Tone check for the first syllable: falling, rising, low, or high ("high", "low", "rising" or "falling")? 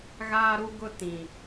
high